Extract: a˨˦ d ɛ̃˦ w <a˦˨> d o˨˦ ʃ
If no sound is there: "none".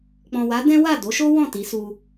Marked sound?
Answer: a˦˨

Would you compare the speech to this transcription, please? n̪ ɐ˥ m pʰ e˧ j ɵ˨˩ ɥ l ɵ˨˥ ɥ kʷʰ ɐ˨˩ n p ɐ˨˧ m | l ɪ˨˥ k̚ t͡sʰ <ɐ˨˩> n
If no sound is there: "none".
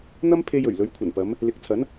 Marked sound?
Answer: ɐ˨˥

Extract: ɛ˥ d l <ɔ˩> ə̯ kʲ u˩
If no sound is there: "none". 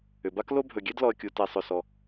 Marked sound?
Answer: ɔ˩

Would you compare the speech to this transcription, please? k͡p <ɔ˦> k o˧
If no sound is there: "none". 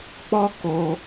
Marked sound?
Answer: ɔ˦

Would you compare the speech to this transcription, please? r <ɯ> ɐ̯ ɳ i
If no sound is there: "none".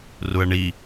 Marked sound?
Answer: u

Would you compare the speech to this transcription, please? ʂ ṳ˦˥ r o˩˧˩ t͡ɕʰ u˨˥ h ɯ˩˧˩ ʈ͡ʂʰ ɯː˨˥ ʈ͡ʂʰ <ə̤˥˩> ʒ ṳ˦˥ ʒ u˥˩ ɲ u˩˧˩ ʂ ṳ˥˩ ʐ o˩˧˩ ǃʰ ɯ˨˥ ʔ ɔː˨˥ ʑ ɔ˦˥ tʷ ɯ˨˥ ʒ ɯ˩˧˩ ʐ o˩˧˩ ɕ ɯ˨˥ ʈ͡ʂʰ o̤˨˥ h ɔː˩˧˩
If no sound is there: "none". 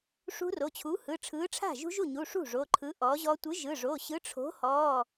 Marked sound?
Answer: a̤˥˩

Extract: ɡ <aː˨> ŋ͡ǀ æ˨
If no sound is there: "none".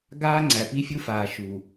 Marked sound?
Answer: aː˦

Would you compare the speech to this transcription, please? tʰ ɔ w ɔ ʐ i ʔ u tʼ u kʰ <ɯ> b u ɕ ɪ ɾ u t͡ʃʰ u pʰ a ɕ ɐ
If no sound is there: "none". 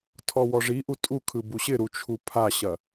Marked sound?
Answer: ɯ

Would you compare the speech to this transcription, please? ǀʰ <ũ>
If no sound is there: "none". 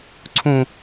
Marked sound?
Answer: ũ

